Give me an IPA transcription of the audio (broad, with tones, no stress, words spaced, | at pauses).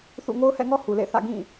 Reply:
θṵ˦˨ ŋo˦ʊ̯hɛ̰˦˨ŋɔ˦ hu˨lḛ˦˨θä̰˦˨ ɡĩ˦˨